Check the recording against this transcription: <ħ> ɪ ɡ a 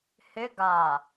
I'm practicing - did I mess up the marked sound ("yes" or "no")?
yes